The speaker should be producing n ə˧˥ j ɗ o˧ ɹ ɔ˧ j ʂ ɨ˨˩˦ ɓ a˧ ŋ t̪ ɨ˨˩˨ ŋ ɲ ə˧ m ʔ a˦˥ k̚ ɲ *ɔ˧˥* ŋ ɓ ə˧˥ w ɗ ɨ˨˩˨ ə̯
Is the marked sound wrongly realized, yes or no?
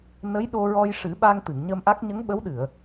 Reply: yes